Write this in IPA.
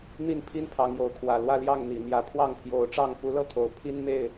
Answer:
n̪ i˥˨ n pʰ i˦ n pʰ ɑ˨˦ ŋ j o˨˦ ʊ̯ kʰ w ä˨˩ l w ä˥˨ l j ɑ˥˨ ŋ n̪ i˨˩ n̪ j ä˨˦ pʰ w ɑ˥˨ ŋ pʰ j o˨˦ ʊ̯ ʈ͡ʂ ɑ˥˨ ŋ p u˨˦ l ɤ˥˨ t̪ʰ o˨˩ ʊ̯ pʰ i˦ n m e˥˨ ɪ̯

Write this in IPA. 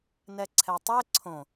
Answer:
n ɛ ǀʰ ɛ tˤ e ǀʰ õ

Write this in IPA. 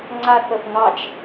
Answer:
ŋ͡ǀ a θ ə f ŋ ɑ t͡ʃ

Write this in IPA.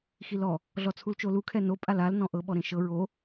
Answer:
x i l ɔ | ɮ ɔ t͡sʰ u l t͡ʃ o l u kʰ ɛ n o pʼ a l a l n ɔ̃ ʔ ɤ ɓ ɔ ɾ ẽ ʃ ɤ ɹ o

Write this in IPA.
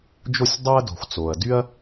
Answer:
d͡ʒ o˦˨ sʲ dˤ u˦ ɐ̯ d ɔ̤˨ xʷ t͡s o˨ ɐ̯ d y˦ ɐ̯

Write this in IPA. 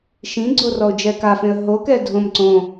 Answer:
ʃ ĩ ɡ͡ǀ o r ɔ ʊ̯ d͡ʒ ɛ k a f ẽ ə̯ ɦ o k ɛ dʱ õ m ǀ õ

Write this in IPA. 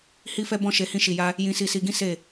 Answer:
h i˦ f ɛ˦ b ɔ̃˦˨ ʃ e˧ h ĩ˧ ʃ i˨ j a˧ | j ĩ˧ s i˧ s i˧ ɡ ĩ˦ s e˦˨

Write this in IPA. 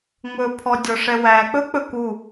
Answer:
ŋ͡m ɵ pʰ ɔ dʲ ɔ ʂ ɛ w æ k͡p ɵ k͡p ɵ k u

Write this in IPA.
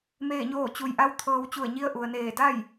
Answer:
m eː˧˩ ɲ oː˧˩ t͡ɕ u˩ j ʔ a˧ w t̪ʰ ɤː˧ w t͡ɕ u˧˩ ə̯ ɲ i˧ ə̯ ʔ u˩ ə̯ n eː˧˩ d a˥˨ j

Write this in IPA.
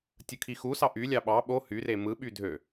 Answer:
tʲ ɯ kʰ i x u s ɑ ʔ y lʲ ɑ ɓ ɑ ɓ o h y r e m ɯ ɓ y dʱ ø

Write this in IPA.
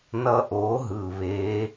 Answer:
n ʌ˥ ʔ o˨˥ ɦ ɯ˨˩ β e˨˥

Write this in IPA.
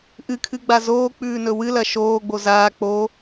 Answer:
ʔ ɨ kʰ ɨ ɡ͡b a z oː k͡p ʉː n ɵ w ɨ l ɐ ʃ oː ɡ͡b o z aː k͡p o

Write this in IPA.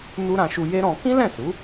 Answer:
n u˦ ɾ ã˧ ʃ u˧ j e˦ ɾ ɔ̃˧ k ĩ˦ l ɛ̃˦˨ s u˨˦

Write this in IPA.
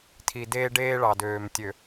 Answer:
tʰ i˨ d eː˦ ɖ eː˦ ɭ ɑ˨ d øː˨ m tʲ ø˨

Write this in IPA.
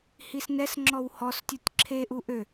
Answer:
h i s n ɛ s ŋ͡ǁ ɔ w h ɔ s tʲ u tʲ ǁʰ e ʔ u ʔ ø

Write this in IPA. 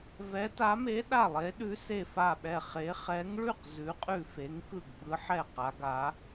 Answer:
v ɛ˧˥ t a˧˥ m e˧˥ ɗ a˥˨ lˠ e˧˥ ɗ ʉ˧˥ s e˥˨ f a˥˨ ɓ ɛ˥˨ χ e˧˥ χ ɛ˧˥ ŋ ɭ ʉ˥˨ q z ʉ˧˥ qʼ ʉ˥˨ f e˧˥ ŋ k ɯ˥˨ ɡ ɡ͡b ɯ˧˥ ħ ɛ˥˨ q a˧˥ ɡ a˧˥

